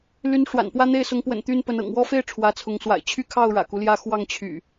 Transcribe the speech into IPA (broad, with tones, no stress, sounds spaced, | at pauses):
l y˨˦ n ʂ w a̰˨˩ n p w ä˦ n̪ e˥˨ ɪ̯ s ʊ˨˦ ŋ p w ə̰˨˩ n t̪ y˦ n p ə˨˦ n ɤ̰˨˩ ŋ w ɔ˦ f e˥˨ ɪ̯ ʈ͡ʂʰ w ä˨˦ t͡sʰ ʊ˨˦ ŋ s w a̰˨˩ ɪ̯ t͡ɕʰ y˦ kʰ ɑ˥˨ ʊ̯ ɻ ä̰˨˩ k u˦ l j ä˥˨ x w ɑ˥˨ ŋ t͡ɕʰ y̰˨˩